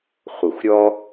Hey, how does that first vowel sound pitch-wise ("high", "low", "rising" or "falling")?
low